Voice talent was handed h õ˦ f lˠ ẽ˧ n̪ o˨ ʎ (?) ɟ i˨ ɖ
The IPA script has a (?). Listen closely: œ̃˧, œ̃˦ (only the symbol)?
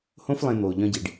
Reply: œ̃˧